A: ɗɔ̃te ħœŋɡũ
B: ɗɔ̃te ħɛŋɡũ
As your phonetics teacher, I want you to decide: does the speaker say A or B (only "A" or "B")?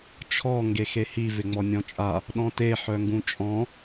A